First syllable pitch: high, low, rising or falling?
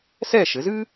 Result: falling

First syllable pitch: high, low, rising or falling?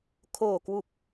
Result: low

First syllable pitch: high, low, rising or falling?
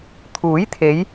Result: rising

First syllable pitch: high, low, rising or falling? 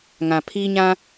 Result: low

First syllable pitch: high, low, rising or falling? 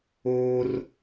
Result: high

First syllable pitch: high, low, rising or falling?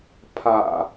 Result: low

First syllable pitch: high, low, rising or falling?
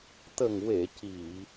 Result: low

